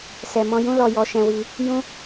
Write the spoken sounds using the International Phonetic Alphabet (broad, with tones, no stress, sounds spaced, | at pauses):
s ɛ˨ m ɔ̃˧ j ũ˦ l ɔ˧ j ɔ˧ ʃ ɛ̃˧ w i˧ | j ũ˦